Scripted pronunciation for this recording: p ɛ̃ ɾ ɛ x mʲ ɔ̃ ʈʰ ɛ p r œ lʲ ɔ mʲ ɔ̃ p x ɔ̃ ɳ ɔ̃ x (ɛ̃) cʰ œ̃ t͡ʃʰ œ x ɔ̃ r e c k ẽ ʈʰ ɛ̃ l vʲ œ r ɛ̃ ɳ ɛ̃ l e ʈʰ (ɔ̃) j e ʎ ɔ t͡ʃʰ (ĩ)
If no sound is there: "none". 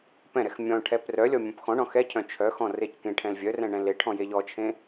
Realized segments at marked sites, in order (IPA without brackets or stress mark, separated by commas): ɛ, ɔ̃, ẽ